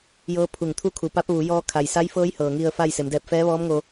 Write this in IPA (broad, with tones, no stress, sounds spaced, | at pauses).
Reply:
j ɤː˧˥ pʰ u˧˩ ŋ t̪ʰ u˥˨ kʰ u˩ p a˧˥ p̚ ʋ u˩˧ j ɔː˧ kʰ a˩ j s a˧˥ j f ɤː˧˥ j h ɤː˩ ŋ i˧ ə̯ f a˥˨ j s e˩˧ m d ɛː˧ p̚ f ɛː˧˥ ʋ ɔː˧˥ m ŋ o˧